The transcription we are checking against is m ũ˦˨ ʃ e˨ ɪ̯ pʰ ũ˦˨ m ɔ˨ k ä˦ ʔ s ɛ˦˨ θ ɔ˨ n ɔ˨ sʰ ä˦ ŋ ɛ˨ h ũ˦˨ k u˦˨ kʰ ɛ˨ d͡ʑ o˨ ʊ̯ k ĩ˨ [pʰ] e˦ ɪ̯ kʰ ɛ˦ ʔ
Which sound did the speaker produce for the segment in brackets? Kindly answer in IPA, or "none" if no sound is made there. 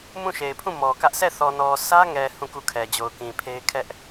pʰ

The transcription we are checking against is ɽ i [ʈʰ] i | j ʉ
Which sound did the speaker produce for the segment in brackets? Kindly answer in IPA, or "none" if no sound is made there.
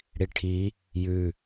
ʈʰ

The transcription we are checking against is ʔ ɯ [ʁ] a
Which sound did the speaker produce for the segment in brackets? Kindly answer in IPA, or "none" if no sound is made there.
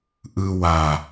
w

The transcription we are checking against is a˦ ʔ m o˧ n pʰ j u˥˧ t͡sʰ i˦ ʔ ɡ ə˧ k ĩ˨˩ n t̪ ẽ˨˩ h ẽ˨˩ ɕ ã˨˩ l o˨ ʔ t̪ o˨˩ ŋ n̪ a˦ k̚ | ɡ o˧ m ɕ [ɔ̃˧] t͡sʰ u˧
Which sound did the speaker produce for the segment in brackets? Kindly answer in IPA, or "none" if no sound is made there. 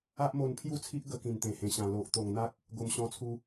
ɔ̃˧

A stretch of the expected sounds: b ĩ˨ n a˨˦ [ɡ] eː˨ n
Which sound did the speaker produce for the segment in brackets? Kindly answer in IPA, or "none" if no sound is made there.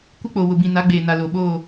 ɡ͡b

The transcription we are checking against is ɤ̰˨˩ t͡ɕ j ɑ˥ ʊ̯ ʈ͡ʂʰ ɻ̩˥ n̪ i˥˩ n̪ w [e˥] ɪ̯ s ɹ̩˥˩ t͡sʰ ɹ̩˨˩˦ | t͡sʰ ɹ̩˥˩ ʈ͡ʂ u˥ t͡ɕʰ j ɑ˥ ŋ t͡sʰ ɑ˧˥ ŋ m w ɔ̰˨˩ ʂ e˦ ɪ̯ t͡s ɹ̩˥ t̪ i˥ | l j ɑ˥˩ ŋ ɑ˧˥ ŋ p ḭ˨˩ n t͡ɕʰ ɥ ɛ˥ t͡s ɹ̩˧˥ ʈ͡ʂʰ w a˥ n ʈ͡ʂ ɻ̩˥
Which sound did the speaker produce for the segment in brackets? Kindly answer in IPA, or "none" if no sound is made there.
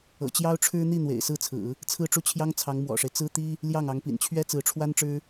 ḛ˨˩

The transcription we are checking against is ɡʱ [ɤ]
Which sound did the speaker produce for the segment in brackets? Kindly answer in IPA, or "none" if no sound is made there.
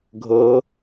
ɤ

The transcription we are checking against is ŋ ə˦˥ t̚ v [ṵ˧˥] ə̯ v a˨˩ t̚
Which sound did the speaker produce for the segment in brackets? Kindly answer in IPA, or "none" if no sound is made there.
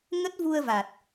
u˧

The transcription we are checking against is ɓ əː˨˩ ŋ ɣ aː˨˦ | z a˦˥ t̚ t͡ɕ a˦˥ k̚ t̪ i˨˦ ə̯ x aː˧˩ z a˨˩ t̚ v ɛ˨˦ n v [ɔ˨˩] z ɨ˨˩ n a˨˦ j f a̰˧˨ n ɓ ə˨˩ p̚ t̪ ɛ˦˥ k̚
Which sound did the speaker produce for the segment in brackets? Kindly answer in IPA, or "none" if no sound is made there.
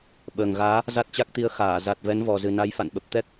ɔ˨˩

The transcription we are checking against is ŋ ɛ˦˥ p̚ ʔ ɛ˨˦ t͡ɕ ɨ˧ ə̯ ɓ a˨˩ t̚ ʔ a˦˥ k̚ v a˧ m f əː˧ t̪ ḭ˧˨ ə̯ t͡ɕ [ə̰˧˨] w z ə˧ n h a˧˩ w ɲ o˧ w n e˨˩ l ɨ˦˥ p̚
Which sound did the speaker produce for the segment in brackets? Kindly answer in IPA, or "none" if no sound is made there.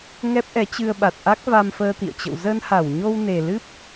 ə̰˧˨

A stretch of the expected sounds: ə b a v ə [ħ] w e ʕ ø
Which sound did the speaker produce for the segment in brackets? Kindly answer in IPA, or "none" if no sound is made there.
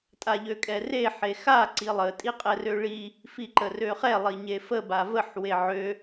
ħ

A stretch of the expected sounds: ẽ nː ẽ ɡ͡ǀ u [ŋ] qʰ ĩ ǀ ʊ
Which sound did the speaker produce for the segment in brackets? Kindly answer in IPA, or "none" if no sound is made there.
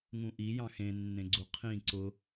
none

